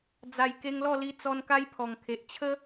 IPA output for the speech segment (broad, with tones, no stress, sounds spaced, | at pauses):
d͡z a˨˩ j k e˧ ŋ l ɔ˥˧ l i˧ t͡s ɔ˧ n k a˦ j pʰ ɔ˨˩ ŋ kʰ e˨ ʔ t͡ɕʰ ə˦